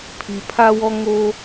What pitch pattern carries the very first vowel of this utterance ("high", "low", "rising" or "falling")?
low